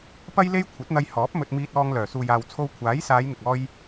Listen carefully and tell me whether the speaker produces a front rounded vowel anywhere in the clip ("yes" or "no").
yes